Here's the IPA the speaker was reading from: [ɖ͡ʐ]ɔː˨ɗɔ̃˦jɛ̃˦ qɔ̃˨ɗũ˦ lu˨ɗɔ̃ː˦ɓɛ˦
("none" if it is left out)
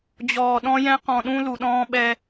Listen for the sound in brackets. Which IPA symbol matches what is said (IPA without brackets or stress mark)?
d͡ʑ